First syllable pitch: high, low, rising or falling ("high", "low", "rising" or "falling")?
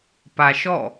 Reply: low